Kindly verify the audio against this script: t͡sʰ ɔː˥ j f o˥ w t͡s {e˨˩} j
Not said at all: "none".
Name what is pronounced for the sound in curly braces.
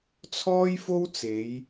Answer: e˨˧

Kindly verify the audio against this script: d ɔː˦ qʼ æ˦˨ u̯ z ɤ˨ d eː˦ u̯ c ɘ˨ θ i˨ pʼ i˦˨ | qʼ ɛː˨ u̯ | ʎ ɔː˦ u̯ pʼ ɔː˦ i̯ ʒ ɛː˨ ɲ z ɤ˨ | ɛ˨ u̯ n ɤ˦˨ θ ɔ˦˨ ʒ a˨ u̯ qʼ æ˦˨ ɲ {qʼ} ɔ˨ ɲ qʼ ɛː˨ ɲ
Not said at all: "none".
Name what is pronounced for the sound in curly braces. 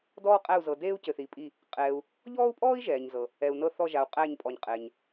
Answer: pʼ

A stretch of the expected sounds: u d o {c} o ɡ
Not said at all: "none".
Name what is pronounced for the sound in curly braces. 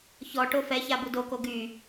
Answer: k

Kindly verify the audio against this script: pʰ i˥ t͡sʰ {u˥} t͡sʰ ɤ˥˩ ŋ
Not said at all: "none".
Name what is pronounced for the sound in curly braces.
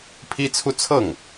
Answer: u˥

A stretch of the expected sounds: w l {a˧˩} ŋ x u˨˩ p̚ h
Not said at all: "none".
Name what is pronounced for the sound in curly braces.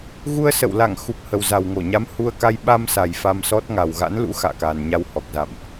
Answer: a˧˩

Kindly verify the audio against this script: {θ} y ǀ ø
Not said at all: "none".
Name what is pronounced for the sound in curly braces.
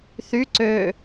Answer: θ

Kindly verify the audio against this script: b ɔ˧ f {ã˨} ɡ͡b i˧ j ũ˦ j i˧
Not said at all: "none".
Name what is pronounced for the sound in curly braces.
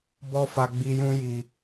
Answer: a˨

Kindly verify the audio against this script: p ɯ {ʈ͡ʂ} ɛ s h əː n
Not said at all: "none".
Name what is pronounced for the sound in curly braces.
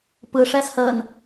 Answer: ʂ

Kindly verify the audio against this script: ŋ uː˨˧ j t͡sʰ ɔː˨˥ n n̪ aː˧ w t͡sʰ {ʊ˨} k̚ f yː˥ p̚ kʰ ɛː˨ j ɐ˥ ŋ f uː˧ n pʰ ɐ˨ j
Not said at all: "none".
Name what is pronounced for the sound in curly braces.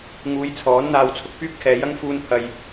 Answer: ʊ˧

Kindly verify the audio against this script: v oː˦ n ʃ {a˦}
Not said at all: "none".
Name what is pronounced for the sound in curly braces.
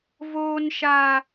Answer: a˦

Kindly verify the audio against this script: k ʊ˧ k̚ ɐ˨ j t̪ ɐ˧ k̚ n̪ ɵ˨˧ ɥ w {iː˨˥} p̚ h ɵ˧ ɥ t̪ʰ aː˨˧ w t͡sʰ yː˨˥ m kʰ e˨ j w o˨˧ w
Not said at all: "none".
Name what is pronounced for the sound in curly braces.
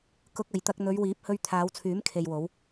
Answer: iː˨˥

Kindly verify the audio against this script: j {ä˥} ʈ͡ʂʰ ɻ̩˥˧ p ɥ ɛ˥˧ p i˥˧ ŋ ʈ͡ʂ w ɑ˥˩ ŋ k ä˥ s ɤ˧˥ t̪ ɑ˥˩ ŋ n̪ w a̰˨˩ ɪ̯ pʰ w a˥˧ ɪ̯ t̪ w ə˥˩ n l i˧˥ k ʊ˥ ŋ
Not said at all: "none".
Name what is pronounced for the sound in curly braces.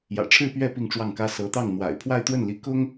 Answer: ä̰˨˩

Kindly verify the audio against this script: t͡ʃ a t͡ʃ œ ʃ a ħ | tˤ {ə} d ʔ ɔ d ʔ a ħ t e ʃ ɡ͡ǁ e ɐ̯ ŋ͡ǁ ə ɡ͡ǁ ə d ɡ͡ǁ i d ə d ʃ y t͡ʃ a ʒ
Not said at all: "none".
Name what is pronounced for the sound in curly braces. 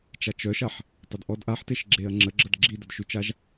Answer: ə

